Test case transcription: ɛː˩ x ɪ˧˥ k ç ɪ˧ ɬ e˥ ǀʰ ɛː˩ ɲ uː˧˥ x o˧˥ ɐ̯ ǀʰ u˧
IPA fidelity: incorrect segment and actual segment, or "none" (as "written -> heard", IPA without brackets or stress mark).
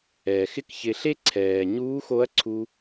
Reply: none